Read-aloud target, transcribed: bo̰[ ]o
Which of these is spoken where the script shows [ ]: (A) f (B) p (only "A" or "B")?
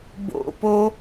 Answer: B